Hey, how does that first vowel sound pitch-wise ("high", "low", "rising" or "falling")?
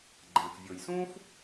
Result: low